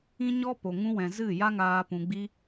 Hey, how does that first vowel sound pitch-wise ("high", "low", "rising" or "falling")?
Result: high